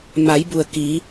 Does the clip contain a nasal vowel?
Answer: no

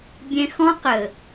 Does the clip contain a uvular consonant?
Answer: yes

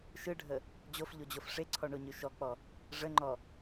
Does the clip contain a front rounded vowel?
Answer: yes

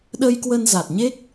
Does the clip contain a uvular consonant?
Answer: no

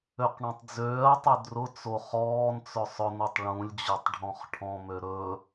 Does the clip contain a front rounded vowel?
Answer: yes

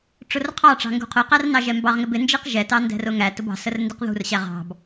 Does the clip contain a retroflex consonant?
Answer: yes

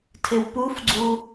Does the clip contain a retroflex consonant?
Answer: no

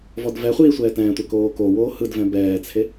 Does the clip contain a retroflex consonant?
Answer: no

